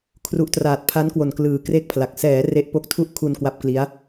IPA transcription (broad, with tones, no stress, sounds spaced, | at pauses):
kʰ r u˨˩ ʔ t r aː˨˩ t̚ pʰ a˦˥ n k w o˨˩ n k l ɯː˨˩ k r e˥˩ k̚ pʰ l a˨˩ k̚ s ɛː˩˦ r e˦˥ ʔ p o˦˥ k̚ tʰ u˥˩ ʔ kʰ u˧ n k w a˦˥ p̚ k l i˦˥ a̯